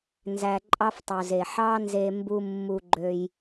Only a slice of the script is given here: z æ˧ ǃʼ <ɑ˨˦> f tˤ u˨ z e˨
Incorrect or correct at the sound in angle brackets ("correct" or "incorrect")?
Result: incorrect